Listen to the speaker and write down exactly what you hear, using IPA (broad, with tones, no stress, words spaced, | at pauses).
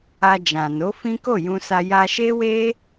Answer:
a˧d͡ʒã˨ no˨˦fĩ˦ko˦˨ jũ˧sa˧ ja˧ʃe˦we˦